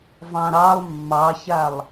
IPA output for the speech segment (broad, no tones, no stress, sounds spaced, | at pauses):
v ɑ̃ ɾ ɑ lˠ mː ɑ ç a lˠ